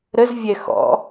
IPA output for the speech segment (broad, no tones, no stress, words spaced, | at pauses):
ɾəzvʲɛ xɔ̰